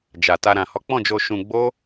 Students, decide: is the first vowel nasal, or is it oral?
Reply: oral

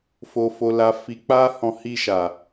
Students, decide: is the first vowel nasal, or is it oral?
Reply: oral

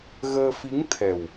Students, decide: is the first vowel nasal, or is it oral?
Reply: oral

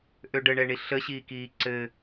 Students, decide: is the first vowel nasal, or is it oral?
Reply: oral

